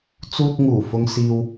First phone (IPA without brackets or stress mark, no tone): t͡s